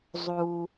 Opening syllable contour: low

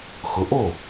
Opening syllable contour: rising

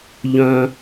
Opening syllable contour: high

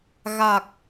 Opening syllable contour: low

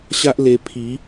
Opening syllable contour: high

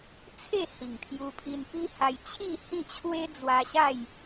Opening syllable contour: falling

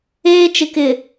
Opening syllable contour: high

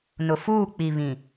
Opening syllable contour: low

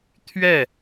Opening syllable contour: falling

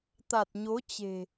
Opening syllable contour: low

